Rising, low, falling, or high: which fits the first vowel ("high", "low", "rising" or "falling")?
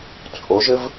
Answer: rising